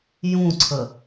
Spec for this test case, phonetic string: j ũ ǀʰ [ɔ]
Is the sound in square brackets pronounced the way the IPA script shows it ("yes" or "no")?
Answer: no